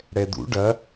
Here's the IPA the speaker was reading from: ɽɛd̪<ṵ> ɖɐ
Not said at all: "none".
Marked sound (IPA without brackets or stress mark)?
ṵ